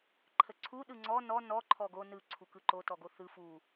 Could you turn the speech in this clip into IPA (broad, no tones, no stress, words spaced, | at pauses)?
ǃʰəǀʰu ɗɯŋ͡ǀɔ nɔ nɔ ǃʰɔɡo nɯ ǀʰukɯǃo tɔɡoθɯ fu